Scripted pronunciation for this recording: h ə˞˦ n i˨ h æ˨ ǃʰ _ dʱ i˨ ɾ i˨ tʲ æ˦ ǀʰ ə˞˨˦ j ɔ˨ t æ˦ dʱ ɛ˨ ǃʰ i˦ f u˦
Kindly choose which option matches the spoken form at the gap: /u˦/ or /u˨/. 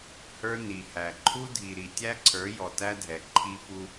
u˦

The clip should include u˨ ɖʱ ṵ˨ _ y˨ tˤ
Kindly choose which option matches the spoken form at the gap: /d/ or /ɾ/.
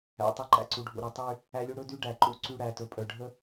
ɾ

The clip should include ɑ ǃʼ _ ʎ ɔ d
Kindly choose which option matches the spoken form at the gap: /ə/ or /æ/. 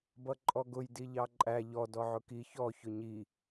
æ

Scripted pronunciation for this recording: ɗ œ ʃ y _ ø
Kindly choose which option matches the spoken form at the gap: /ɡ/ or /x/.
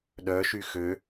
x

